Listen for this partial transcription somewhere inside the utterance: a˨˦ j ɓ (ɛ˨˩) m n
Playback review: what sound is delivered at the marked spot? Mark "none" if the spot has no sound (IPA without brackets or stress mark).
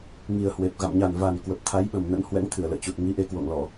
ə˨˩